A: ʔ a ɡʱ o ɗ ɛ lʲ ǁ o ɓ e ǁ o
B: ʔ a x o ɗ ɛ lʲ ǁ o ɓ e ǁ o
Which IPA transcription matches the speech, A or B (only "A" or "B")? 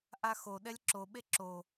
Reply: B